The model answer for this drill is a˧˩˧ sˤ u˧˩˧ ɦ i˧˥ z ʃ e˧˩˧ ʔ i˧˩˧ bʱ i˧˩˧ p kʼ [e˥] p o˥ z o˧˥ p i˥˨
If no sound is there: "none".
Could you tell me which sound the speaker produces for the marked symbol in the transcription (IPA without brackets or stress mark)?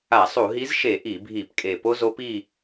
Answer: e˨˩